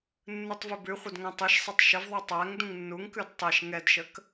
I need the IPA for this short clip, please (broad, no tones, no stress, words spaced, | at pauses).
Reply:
nːɯtˤvʏbʉχʷəd ŋæ̃tˤɯʃsˤitˤ ʃəvðˤʉ tˤæŋ dũŋnːuŋkʉd tˤeʃ ŋɛdʃək